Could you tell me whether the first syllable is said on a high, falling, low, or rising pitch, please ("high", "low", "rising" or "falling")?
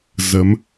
rising